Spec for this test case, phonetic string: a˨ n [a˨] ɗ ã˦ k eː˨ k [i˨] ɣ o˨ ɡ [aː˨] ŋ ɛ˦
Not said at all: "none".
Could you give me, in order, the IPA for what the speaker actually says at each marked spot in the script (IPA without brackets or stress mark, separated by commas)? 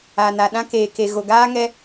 a˨, e˨, aː˦